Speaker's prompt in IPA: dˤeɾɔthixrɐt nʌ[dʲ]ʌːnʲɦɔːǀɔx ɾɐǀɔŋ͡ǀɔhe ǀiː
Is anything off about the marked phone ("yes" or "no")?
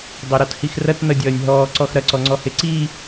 no